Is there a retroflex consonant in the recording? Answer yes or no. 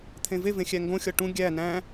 yes